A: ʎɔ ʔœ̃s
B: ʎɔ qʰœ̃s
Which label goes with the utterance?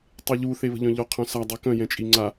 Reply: B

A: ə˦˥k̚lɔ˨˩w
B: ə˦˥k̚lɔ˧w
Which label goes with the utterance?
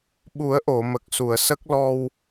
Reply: B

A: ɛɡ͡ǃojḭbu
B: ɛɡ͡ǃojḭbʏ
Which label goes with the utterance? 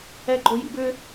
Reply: B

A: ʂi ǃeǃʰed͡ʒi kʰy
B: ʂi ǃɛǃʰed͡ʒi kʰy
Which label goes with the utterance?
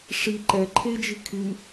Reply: B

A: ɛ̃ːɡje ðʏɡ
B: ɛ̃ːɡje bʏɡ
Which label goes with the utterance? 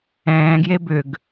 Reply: B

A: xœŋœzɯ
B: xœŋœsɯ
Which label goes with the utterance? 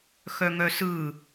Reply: B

